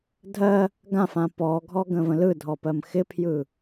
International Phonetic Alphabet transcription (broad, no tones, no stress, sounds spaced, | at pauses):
dʱ ɜ | ɡ ã f ã p ɔ ɡʱ ɔ ɡ ə̃ v ə̃ l ɯ dʱ ɔ p ɜ m x ɪ pʰ j ɯ